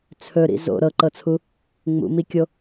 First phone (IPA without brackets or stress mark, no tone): t͡sʰ